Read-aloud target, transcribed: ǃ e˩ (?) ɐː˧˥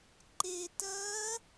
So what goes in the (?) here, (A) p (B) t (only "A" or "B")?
B